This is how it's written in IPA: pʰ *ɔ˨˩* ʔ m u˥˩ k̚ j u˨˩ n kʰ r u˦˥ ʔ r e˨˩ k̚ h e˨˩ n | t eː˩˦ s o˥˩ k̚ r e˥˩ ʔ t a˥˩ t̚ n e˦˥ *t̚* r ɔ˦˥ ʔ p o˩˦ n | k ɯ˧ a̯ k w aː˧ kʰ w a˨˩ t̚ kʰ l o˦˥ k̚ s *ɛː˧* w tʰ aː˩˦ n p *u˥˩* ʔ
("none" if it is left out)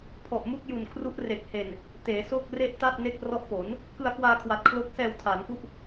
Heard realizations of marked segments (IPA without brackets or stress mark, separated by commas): ɔ˨˩, k̚, ɛː˧, u˥˩